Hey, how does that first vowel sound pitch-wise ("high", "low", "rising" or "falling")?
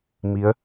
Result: rising